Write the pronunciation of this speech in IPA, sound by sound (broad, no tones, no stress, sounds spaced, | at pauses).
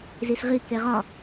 z i s ʁ i k e ʁ ɒ